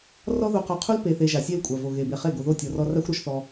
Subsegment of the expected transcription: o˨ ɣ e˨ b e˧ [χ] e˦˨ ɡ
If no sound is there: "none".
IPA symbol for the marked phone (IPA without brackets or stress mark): χ